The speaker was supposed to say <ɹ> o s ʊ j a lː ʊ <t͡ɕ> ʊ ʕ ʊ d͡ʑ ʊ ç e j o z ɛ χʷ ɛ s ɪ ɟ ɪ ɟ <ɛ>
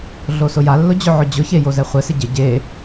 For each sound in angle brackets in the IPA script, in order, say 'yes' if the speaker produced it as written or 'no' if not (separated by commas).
no, no, no